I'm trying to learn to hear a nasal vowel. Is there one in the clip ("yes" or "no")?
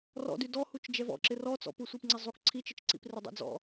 no